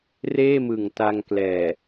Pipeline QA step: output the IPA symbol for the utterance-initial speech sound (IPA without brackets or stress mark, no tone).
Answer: r